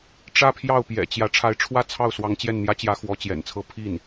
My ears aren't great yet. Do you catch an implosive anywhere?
no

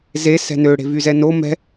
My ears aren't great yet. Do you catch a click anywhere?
no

